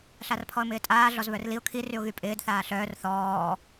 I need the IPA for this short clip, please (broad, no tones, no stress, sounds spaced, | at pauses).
ɬ a r pʰ ɔ ə̯ m ɪː tʼ aː ɮ ɔ z β œ r l i ʊ̯ kʰ i r y ʊ̯ ɣ y pʼ ɪː d θ aː ɬ œː r θ ɔː